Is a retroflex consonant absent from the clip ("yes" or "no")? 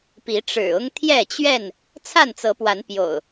no